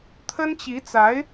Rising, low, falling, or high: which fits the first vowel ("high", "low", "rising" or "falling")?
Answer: high